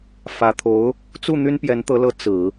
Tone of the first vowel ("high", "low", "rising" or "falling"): low